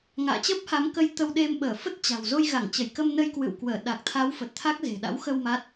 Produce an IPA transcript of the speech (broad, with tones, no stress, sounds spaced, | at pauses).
ŋ a̰ː˧˨ t͡ɕ əː˦˥ p̚ h a˨˦ m k ə˧ j t̪ ə˧ w ɗ e˧ m ɓ əː˧˩ f ə˦˥ t̚ t͡ɕ a̤˨˩ w z o˧ j ɣ a˧˩ ŋ t͡ɕ ə˧˩ j k ə˧ m n ə˧ j k w ɨ̰˧˨ w k w əː˧˩ ɗ a˨˩ k̚ t̪ʰ a˨˦ w f ə˨˩ t̚ t̪ʰ a˦˥ k̚ z e̤˨˩ ɗ a̰˧˥ w x ə˧ w m a˦˥ t̚